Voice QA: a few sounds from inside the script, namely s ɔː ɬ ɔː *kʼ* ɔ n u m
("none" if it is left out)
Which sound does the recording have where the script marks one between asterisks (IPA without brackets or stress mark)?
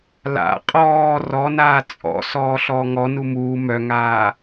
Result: ŋ